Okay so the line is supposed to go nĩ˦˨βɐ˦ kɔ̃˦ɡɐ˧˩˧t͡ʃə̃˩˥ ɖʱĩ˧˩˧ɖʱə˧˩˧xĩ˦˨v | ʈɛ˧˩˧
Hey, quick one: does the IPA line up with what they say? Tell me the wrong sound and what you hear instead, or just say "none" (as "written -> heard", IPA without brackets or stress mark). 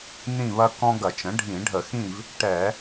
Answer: none